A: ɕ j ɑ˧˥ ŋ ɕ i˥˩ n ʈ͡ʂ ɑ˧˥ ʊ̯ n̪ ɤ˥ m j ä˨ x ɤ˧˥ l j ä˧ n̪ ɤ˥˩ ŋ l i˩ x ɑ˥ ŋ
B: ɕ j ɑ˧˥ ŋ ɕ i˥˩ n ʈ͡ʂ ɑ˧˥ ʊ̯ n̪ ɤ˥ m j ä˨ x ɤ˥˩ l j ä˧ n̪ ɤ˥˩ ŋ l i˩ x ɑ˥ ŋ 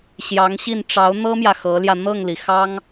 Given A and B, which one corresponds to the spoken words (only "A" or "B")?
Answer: A